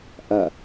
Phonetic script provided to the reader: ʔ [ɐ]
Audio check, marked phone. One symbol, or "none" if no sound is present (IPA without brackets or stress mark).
ɐ